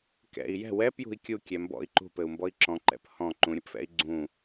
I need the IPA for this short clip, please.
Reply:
kɛ̰i̯ jɛ̤ wɛpjṳi̯ kʲukʲɛ mbɔ̰i̯ ǃṳpɘu̯mbɔi̯ ǁɔ̃ǃɛ̰p hɔ̃ ǃũɾʲɘpfɛ̰i̯ ɡ͡ǀũ

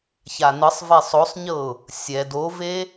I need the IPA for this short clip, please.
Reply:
çanɯsˤve sˤosˤɲɤʊ̯ | sʲɛd ove

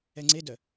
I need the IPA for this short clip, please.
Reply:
ɛŋ͡ǀedœ

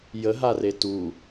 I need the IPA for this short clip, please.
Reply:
jəɦare tu

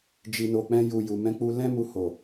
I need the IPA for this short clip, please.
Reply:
d͡ʒi˨no˨k͡pɛ̃˧ ju˨ ju˨ mɛ̃˨˦k͡pu˧ lɛ̃˦mu˧ ho˨

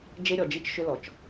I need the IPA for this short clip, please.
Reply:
d͡ʒe˦ɾʲɔ˨d͡ʒi˦t͡ʃ ʃʏ˦lɔ˨t͡ʃ

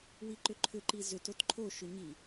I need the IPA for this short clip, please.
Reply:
wiǃʏǃʰʏǃi zʏt otǃʰoʃʏ ɲi

